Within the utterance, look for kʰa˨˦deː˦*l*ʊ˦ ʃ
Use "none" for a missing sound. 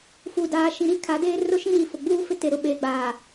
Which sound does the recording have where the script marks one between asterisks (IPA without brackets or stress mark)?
r